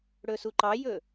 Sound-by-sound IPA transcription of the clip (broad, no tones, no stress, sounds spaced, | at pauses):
ɽ ɵ s u ǃ ɑ j ɵ